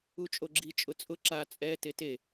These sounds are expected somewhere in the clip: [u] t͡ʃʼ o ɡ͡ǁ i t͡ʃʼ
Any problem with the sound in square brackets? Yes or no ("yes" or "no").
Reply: no